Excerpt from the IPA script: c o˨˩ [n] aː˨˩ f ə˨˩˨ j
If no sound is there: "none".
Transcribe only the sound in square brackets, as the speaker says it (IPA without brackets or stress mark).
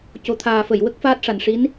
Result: t̪ʰ